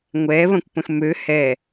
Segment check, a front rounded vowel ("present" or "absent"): present